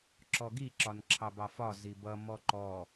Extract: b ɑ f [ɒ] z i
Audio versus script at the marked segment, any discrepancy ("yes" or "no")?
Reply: no